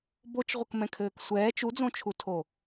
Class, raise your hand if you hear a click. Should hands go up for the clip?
no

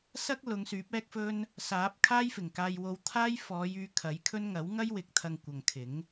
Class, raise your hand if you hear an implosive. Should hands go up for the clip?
no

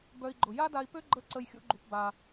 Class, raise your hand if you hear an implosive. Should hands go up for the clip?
no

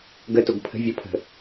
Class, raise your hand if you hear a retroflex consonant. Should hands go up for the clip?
no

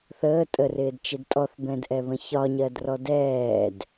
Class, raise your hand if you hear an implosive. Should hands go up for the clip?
no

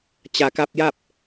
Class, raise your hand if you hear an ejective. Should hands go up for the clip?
no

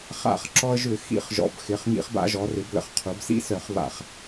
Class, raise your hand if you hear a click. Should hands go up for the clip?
yes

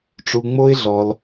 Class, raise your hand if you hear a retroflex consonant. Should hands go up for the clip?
yes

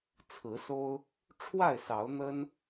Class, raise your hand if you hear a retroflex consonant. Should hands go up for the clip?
yes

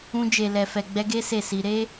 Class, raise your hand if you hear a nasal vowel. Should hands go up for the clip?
yes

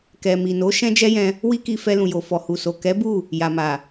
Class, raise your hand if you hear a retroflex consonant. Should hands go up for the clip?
no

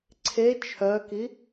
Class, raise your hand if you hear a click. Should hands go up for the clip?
yes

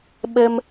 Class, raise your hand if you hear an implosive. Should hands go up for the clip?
yes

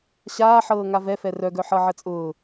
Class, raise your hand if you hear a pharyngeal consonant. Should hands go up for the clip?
yes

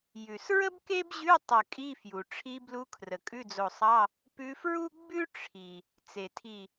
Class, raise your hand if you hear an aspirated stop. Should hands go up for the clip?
yes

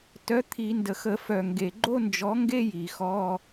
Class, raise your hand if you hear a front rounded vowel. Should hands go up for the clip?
yes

